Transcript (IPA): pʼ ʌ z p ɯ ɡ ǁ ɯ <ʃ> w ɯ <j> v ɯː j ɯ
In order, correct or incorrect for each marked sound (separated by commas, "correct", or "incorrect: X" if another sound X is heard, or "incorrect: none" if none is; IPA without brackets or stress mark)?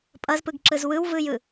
incorrect: z, incorrect: w